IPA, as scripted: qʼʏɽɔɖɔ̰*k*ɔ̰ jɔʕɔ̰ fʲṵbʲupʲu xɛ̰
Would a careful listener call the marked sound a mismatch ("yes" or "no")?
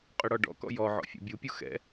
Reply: no